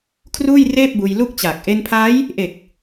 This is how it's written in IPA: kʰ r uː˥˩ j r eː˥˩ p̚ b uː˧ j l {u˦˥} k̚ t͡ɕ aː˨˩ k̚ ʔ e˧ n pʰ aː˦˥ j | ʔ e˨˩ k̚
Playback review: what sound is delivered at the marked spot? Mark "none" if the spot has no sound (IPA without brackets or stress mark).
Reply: u˥˩